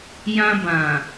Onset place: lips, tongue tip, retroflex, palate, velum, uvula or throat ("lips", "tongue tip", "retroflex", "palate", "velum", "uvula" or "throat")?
palate